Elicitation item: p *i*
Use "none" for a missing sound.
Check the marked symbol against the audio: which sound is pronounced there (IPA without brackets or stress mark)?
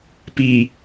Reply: i